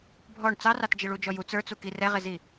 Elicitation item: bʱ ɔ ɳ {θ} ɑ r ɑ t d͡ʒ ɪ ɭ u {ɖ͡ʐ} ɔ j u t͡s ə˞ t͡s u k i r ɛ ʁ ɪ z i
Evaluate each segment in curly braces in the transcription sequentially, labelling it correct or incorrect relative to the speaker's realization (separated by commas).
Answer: incorrect, incorrect